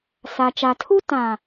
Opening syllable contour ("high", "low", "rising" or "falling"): high